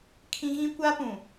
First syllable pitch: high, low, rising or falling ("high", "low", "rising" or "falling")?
high